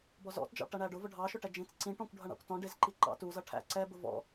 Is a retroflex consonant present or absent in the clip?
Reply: present